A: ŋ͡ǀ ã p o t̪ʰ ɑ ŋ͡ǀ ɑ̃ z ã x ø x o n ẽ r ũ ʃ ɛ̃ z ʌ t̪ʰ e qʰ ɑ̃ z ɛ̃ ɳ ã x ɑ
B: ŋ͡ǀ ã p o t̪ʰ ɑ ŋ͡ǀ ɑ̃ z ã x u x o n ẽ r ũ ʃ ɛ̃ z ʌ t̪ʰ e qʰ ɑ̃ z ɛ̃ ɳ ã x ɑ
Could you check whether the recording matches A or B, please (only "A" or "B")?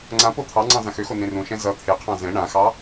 A